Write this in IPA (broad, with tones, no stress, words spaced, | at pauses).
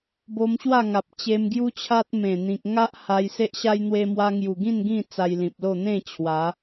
bo˧mɕwa˥˧ŋa˨p̚ t͡ɕe˧mɡju˦t͡ɕʰa˦t̚ mẽ˨˩ n̪ĩ˨k̚ ŋa˦ʔ ha˧j se˦ʔɕa˦j n̪we˧mwa˧ŋju˨˩ɡĩ˥˧n ɡĩ˥˧ t͡sa˧jlĩ˨p̚lo˥˧ n̪ẽ˥˧ t͡ɕʰwa˨˦